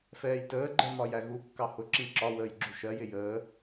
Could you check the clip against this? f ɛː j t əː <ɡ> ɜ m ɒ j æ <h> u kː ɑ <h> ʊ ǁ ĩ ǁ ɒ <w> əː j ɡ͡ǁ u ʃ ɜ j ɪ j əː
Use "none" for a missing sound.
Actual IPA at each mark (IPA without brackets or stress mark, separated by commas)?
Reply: ɡ͡ǃ, ɣ, h, w